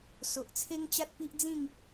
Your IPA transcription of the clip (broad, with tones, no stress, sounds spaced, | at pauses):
s o˨ ʔ t͡sʰ e˦ ŋ t͡ɕ a˦ t̚ p i˦ ʔ d͡z ĩ˥˧ ŋ